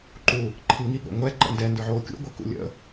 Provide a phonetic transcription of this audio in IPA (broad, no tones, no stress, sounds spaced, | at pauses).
ǃ u | ǃʰ i ŋ i ɠ o̰ ŋʷ ɛ ǃ ə̰ n d ɛ n d ə˞ ʕ oː kʲ ṵ ɡʷ ə˞ k ṵ lʲ ə̰